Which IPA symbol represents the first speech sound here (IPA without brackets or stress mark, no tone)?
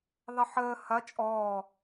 ðˤ